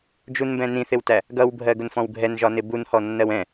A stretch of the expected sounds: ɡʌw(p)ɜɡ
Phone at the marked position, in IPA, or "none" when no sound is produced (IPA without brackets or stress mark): bʱ